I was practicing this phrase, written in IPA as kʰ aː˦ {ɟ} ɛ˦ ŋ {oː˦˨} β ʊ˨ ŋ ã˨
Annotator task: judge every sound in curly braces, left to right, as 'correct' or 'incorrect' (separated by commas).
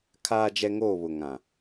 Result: incorrect, correct